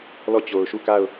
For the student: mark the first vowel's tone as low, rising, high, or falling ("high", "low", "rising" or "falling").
falling